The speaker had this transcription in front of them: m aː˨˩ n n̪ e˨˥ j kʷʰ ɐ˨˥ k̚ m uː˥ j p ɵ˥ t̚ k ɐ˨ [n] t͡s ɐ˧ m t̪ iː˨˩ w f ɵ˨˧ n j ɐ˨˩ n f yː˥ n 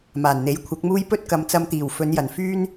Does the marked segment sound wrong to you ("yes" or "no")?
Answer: yes